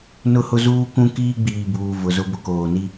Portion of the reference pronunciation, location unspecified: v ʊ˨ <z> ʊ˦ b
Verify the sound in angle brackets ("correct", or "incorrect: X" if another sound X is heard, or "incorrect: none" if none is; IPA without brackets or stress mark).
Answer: correct